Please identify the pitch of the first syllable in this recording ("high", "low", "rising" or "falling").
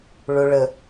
low